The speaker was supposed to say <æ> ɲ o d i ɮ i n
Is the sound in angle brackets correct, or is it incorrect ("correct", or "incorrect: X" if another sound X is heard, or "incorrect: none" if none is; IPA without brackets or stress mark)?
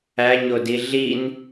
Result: correct